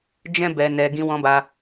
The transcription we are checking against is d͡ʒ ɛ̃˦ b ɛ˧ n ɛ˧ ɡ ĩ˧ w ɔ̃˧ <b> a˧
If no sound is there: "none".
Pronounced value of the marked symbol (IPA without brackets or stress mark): b